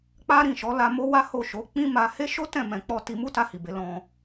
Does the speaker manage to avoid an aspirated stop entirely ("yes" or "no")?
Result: yes